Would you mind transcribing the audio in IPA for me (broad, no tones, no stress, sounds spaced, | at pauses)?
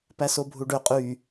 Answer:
p æ s o bʱ u ɖ ø qʼ y